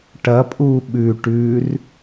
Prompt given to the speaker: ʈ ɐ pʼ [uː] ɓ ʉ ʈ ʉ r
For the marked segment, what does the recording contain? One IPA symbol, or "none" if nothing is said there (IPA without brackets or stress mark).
uː